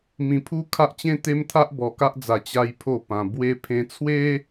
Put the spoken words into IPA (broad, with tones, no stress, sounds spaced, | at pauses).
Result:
m ĩ˧ pʰ u˦ kʰ a˦ ʔ t͡ɕ ẽ˦ t̪ e˦ m t̪ʰ a˦ ʔ b ɔ˧ k a˦ ʔ d͡z a˧ t͡ɕ a˦ j pʰ o˥˧ p ã˧ b w e˧ pʰ ẽ˧ t͡sʰ w e˦